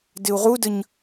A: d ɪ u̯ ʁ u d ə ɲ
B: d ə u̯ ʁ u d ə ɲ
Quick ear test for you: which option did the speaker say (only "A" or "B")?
A